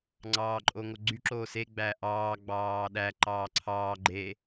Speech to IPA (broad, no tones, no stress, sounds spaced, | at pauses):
ŋ͡ǀ ɑː ǃʼ o ŋ o ɡ͡ǀ y ǁ oː s e ɡ͡b æ ʔ ɑː ɡ͡b ɑː ɗ æ ǃ ɑː ǀʰ ɑː ɡ͡ǃ e